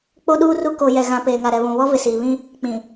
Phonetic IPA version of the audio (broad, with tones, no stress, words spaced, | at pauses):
k͡po˦ɗuː˦ru˦ ko˨jɛ˨ɣã˨ peː˨ŋa˨ɾɛ˨βũ˨ βɔ˦vɪ˨siː˨ βĩ˦ | k͡pĩ˨